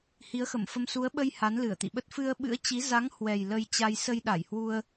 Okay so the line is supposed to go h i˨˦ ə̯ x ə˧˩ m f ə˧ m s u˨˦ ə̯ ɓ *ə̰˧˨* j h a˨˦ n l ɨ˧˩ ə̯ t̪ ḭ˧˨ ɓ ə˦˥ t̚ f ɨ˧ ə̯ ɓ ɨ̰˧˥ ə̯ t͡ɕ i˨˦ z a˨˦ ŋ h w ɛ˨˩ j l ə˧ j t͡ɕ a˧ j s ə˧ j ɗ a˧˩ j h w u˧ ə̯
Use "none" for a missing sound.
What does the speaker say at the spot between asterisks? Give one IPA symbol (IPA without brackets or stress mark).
ə˧